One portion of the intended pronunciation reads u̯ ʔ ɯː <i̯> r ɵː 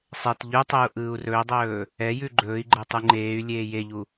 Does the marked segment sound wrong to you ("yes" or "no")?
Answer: yes